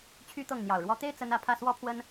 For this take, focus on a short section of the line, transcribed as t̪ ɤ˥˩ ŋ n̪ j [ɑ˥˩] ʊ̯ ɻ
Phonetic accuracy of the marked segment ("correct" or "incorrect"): incorrect